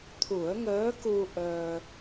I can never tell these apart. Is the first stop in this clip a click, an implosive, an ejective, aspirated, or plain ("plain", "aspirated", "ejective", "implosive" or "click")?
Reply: aspirated